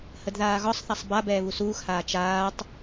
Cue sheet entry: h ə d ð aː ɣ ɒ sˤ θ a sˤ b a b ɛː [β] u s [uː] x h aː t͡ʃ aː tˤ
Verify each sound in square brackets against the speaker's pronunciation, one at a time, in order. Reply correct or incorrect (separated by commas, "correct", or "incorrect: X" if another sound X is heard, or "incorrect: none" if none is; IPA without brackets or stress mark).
correct, correct